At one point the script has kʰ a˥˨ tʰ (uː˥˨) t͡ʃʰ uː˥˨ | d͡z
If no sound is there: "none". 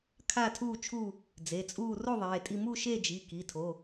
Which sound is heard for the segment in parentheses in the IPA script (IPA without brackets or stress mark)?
uː˥˨